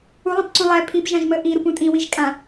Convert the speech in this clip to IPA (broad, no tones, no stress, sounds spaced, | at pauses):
u lˠ ẽ p ǀ ũ lˠ ɛ pʰ i p ʒ ã ʒ m ə ʔ i ɾ u p ũ tʼ ĩ w i ʒ kʼ ã